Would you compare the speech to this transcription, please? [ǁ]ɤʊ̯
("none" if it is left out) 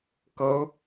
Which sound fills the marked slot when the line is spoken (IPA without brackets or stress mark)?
k